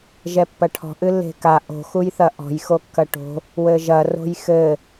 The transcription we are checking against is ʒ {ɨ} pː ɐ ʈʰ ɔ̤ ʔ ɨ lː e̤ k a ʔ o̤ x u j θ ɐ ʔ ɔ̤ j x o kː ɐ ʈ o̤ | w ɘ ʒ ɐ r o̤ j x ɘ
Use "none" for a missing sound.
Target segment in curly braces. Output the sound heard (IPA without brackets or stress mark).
ɛ